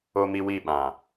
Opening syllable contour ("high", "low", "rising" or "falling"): high